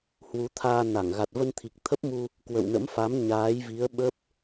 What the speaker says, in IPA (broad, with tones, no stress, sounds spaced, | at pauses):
h w u˨˦ t̪ʰ aː˧ n a˧˩ ŋ ɣ a˨˩ t̚ v ə˧ n t̪ʰ i˨˩ k̚ t̪ʰ ə˦˥ p̚ m u˧ | k w ə̰˧˨ w n ə̰˧˥ m f a˨˦ m ɲ aː˨˦ j v i˨˦ ə̯ ɓ ə˦˥ p̚